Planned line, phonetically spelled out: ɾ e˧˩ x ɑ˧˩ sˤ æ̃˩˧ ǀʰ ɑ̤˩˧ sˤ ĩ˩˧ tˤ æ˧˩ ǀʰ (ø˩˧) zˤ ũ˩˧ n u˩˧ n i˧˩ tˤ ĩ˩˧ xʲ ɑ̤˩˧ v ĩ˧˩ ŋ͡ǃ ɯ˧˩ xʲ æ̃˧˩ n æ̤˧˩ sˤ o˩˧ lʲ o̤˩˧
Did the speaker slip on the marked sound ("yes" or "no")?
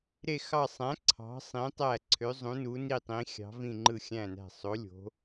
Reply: no